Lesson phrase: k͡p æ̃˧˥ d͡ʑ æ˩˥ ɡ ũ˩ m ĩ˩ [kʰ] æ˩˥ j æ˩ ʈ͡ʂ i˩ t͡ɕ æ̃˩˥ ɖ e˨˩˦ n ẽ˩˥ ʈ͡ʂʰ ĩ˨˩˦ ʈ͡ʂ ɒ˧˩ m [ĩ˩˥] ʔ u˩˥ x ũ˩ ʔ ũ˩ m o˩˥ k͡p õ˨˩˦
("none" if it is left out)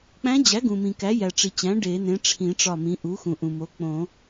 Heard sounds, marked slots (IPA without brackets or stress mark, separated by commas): k, ĩ˩˥